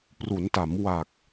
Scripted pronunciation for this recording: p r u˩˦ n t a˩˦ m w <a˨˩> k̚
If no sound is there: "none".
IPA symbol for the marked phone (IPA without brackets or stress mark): a˨˩